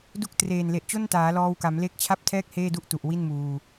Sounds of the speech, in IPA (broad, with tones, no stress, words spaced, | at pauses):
du˦˥k̚ treː˨˩nle˨˩ʔ t͡ɕo˥˩ntaː˩˦lɔː˧wka˩˦m le˦˥k̚t͡ɕʰa˥˩p̚tʰɛː˥˩k̚ heː˥˩du˥˩ʔtu˨˩ʔ wi˥˩nmuː˧